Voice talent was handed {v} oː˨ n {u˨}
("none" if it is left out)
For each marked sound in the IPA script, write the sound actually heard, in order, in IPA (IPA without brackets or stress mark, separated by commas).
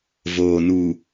v, u˨